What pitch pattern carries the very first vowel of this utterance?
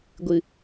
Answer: low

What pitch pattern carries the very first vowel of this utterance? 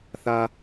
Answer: high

